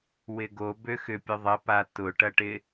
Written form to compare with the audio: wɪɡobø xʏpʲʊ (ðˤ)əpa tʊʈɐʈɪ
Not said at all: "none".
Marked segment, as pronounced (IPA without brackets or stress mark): ðˤ